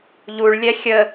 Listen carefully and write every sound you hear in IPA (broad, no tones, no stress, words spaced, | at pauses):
ʎuɭ lʲɛxʲə